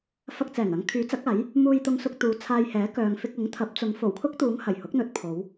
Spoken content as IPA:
f ɐ˧ k̚ t͡s ɛː˨˩ ŋ ɐ˧ ŋ kʰ yː˨˥ t͡s ɐ˨˥ k̚ aː˨˥ j | m uː˧ j t̪ ʊ˧ ŋ s ʊ˧ k̚ t̪ uː˨˥ t͡sʰ aː˧ j h ɛː˨˥ k œː˨ ŋ f ɪ˧ k̚ ʊ˨˥ ŋ t̪ʰ ɐ˨˥ p̚ t͡s ʊ˨˧ ŋ f o˨˩ w kʰ ʊ˥ k̚ t̪ uː˨˧ ŋ h ɐ˨˩ j h ʊ˨˥ k̚ n̪ ɵ˨˥ t̚ pʰ o˨˧ w

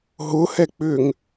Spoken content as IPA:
ɦ ʊ h ɛ k͡p ʏ ŋ

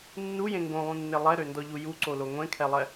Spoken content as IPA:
nː u j ẽ ŋ ɡ õ lˠ ũ nː e lˠ ɛ ɾ ø n d ɔ ʎ u j u ǀ o l o ŋʷ ẽ kʰ ɛ lˠ ɛ

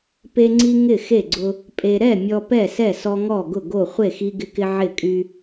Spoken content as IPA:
p e˦ ŋ͡ǀ i˦ ŋ ɪ˥˨ x e˥˨ ɡ͡ǀ ʊ˦ | pʼ e˦ ɾ ɛ˥˨ mʲ ɔ˦ p ɛ˥˨ s ɛ˥˨ s ɔ˦ ŋ ɔ˥˨ ɡ ʊ˥˨ ɡ o˥˨ χʷ e˥˨ x i˦ ɡ ɪ˦ k ɪ˦ ʕ ɪ˥˨ kʼ y˦

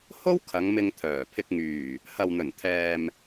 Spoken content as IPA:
h o˥ w kʰ ɐ˨˧ ŋ m ɪ˧ ŋ t̪ʰ œː˨˩ pʰ ɪ˨ k̚ ŋ yː˨˩ | h ɐ˨ w n̪ ɵ˨˩ n t̪ʰ ɛː˨ m

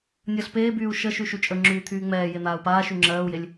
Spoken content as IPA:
nʲ əː ɬ p eː b yː u̯ ʃ ə ʃ y ʃ y t͡ʃʼ ə ŋ͡ǁ yː t̪ʰ yː ŋ͡m ɛː j e n̪ aː u̯ p aː ʃ y ŋ͡ǁ ɜː u̯ j e lʲ

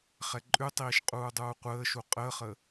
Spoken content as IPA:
χ ɛ ǃʼ ʉ tˤ iː ʃ qʼ uː dˤ uː qʷ əː ʃ u qʼ əː χ ə

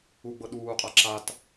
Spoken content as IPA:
u ɡ͡b ɤ ɗ uː qʼ a ǁ a t

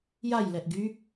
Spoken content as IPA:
j a j l ɛ ʔ ɡ y

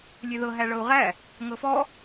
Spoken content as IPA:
lʲ e ð ɤ ɦ æ ɭ ɤ u̯ ʁ æ | ŋ ɤ f ɔ

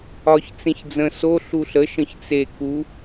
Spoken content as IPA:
ɒ ç t͡s ẽ ç d͡z ə̃ s o ɬ u ɬ ə ʃ ə̃ ç t͡s e k u

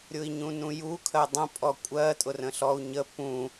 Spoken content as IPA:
ɾʲ ʊ i̯ ɲ ũ n ũ j u kʰ ɜ dˤ ə̃ pʼ ɔ kʷʼ ɜ tʼ ʊ r ə̃ ɬ ɔ u̯ ɲ ə p ũ

